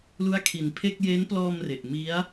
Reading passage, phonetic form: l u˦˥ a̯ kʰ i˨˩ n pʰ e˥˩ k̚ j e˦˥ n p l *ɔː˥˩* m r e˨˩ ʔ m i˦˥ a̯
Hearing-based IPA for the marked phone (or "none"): ɔː˧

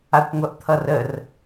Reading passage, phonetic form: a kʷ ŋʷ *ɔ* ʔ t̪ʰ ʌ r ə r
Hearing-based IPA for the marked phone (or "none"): ʌ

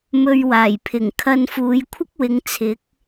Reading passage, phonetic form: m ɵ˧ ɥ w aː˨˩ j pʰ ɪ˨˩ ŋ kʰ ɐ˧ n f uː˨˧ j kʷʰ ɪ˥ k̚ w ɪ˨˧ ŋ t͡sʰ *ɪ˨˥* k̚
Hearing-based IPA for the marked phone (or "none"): ɪ˨˥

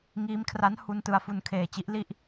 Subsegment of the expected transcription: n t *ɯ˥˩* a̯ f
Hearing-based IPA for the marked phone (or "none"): ɯ˧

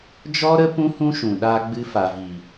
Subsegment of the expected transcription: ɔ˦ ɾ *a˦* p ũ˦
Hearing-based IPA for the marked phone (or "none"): ə˦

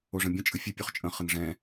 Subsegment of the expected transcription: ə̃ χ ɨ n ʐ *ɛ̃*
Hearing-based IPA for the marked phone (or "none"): ɛ̃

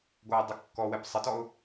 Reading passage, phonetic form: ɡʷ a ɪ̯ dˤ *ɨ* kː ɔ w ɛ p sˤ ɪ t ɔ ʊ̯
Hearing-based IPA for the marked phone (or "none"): ə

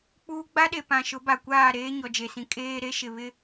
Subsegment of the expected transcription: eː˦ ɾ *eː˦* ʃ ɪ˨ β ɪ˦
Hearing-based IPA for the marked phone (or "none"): e˦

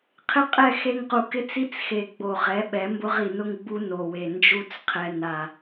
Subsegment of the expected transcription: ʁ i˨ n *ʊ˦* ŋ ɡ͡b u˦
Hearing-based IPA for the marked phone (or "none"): ʊ˦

